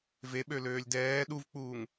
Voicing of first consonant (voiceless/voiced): voiced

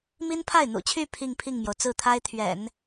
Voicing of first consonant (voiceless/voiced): voiced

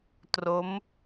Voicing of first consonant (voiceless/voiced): voiceless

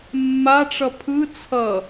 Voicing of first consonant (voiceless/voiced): voiced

